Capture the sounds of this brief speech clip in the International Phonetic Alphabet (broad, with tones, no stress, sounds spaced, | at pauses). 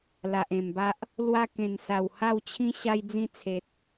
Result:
l a˨ ʔ ẽ˨˩ m b a˦ ʔ | l w a˧ k ẽ˨˩ n s a˨˩ w h a˥˧ w t͡ɕʰ ĩ˦ ɕ a˧ j d͡z ĩ˧ t͡sʰ e˨ t̚